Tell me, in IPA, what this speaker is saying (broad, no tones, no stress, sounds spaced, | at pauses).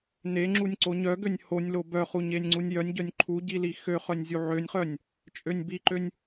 n e ŋ͡ǁ u nʲ ǀ o ɲ œ ɡ ø nʲ h o nʲ l o b œ χ u ɲ e nʲ ŋ͡ǀ u nʲ j œ nʲ ɟ œ nʲ ǃʰ u ɟ i l i x ø χ œ nʲ zʲ u ʕ ø nʲ χ œ nʲ | t͡ʃʼ ø nʲ b i ǃ ø nʲ